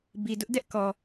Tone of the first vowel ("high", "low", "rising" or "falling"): low